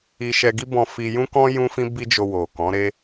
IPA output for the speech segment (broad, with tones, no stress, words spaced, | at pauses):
i˧ʃɛ˧ɡi˦ bɔ̃˧fi˧ jũ˦kɔ̃˦ jũ˦fĩ˦ bi˦d͡ʒo˧ wo˨kɔ̃˨˦ɾe˦